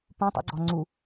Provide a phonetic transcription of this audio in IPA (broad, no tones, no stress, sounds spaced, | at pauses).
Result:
p ũ tˤ ṵ ɡ͡ǀ ɔ ŋ͡ǀ u